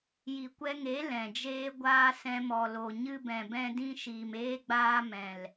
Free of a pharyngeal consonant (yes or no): yes